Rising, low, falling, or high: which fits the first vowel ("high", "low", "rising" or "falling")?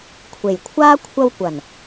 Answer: low